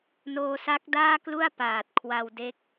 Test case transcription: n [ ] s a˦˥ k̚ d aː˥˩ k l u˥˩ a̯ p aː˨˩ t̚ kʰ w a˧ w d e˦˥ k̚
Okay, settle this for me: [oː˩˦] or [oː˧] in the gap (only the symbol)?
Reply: oː˧